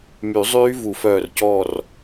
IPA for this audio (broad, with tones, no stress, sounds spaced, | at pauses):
m y˨˩˦ zˤ yː˦˥ v u˨˩˦ f œː˧˩ r c ɔː˧˩ r